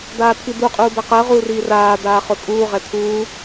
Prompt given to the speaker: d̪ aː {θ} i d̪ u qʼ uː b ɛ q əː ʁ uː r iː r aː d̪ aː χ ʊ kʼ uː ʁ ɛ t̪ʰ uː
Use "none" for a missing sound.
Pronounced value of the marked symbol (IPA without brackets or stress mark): t̪ʰ